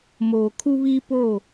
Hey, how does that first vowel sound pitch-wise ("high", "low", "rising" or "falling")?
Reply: low